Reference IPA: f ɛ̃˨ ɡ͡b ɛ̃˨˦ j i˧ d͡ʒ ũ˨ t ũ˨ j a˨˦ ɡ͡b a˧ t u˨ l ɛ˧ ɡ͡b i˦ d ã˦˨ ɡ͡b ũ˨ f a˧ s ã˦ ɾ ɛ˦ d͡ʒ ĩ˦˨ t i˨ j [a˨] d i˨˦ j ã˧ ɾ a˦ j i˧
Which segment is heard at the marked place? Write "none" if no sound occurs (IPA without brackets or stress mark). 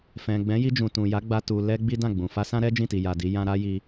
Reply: a˨